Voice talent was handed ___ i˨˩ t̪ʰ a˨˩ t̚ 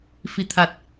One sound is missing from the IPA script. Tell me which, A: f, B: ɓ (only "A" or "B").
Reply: A